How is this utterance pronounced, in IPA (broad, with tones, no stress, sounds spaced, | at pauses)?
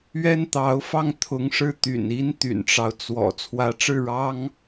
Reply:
ɥ ɛ˥ n t̪ ɑ˧˥ ʊ̯ f ɑ˥˩ ŋ t̪ʰ ʊ˧˥ ŋ ʂ ɻ̩˥˩ t̪ y̰˨˩ n i˥ n t̪ y̰˨˩ n ʈ͡ʂ ɑ˦ ʊ̯ t͡s w ɔ̰˨˩ t͡sʰ w ä˧˥ ʈ͡ʂ ɻ̩˥˩ ɻ ɑ˥ ŋ